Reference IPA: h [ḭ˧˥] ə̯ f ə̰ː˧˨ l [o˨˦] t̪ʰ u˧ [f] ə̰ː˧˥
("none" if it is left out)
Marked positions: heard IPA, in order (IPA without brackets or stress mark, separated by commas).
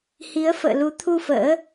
i˨˦, u˨˦, f